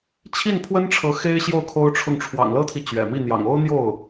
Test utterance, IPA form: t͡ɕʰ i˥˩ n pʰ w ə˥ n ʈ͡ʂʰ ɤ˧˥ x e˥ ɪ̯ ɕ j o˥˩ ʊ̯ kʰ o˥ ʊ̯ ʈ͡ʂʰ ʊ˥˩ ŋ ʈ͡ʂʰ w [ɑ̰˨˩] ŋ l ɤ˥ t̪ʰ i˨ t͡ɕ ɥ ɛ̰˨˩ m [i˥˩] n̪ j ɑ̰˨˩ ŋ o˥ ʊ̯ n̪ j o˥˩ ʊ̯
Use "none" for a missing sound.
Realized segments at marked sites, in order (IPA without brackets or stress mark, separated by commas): ɑ̰˨˩, i˥˩